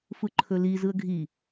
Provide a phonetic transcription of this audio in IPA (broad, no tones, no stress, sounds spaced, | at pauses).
f ɯ ǃʰ ɵ l i z ɯ ə̯ ɡʱ i